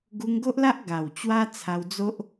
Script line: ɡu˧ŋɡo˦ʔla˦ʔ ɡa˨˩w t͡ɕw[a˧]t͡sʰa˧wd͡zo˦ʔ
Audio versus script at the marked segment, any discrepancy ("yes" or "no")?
yes